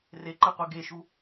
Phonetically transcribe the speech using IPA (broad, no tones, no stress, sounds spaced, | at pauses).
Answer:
r e ǃ ɛ qʷ e ɡ e ʃ u